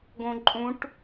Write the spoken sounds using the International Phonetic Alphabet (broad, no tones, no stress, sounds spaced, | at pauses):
ɡ õ ǃʼ ũ ʈ